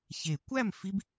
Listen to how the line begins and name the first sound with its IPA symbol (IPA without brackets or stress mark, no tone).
ç